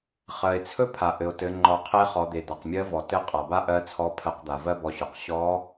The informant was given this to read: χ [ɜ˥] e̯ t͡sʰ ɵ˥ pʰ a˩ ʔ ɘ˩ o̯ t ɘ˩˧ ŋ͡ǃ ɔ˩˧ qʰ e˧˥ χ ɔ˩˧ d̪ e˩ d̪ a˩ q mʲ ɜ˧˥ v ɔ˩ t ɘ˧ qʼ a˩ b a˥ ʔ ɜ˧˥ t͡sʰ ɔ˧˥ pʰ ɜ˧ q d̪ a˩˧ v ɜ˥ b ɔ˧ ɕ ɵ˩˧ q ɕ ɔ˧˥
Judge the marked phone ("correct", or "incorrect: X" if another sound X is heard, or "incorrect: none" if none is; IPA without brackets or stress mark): incorrect: ɜ˩